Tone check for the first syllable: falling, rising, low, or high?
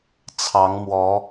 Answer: rising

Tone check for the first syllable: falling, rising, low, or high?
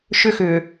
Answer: high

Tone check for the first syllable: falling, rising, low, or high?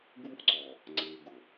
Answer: high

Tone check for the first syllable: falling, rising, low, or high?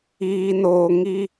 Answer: low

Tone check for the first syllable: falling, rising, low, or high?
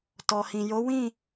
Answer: low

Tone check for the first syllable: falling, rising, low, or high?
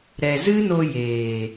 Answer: low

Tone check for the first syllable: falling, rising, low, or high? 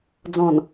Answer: low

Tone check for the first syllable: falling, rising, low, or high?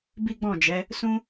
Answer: high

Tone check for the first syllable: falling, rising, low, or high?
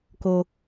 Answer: high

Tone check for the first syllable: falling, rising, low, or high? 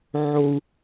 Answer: low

